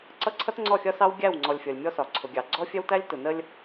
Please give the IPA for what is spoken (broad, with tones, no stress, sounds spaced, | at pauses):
ǀ ʌ˦ ǀʰ ʌ˦ t ŋ͡ǀ ɔ˦˨ xʲ ʌ˦ s ɑ˦ w ɡʲ æ˦˨ w ŋ͡ǀ ɔ˨ lʲ fʲ ʌ˨ lʲ mʲ ɔ˦ s ɒ˨ ǀʰ ʊ˨ ɡʲ ɑ˨ ɡ͡ǀ ɔ˦ fʲ ɛ˦ w t æ˦ lʲ t ʊ˨ n ə˦ lʲ